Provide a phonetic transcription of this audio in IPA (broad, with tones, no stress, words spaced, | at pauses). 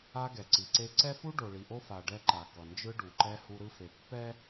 a˦ɡɛ˨ǀi˨ǀe˦ ǀɛ˦fu˦ ɖo˨ɭi˨ʔo˦fa˨ ɖɛ˦ǃa˨ kʌ˨nd͡ʒɯ˦ɖu˨ǃɛ˦ hu˦ɾɯ˦fe˨ pːɛ˦